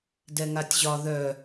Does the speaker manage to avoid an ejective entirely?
yes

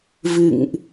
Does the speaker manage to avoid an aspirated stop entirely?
yes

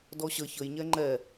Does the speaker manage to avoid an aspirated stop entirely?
yes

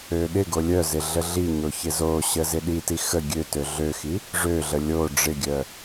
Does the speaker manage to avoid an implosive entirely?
no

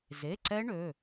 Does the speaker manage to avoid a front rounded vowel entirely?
no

